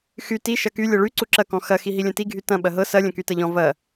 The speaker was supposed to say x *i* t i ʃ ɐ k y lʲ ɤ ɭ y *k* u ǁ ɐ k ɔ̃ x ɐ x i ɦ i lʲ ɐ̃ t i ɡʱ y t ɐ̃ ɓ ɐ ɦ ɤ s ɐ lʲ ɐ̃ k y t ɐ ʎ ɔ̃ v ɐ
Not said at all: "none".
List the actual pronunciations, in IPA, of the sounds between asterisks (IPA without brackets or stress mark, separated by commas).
y, ǀ